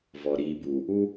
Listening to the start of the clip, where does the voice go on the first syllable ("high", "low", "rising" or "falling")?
low